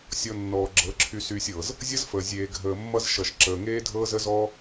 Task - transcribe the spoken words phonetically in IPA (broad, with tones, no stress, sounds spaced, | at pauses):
sʲ ɔ˧ nː ɔː˨ ɡ͡ǁ ɤ˨˦ ǁʰ y˧ s yː˧ sʲ ɤː˨ z | zʲ ʌ˦ z f əː˨ zʲ eː˨ ɡʱ əː˨ mː ʌ˧ z ʃ ʌ˨ ʃ ǁ əː˨ ŋ eː˦ dʱ ɤː˦ z ə˦ z ɔː˦